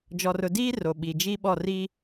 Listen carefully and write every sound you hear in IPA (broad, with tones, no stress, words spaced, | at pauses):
d͡ʒɔ˨rʊ˨ diː˦ ro˨ɓi˨ d͡ʒi˦ɓɔ˦˨ ri˦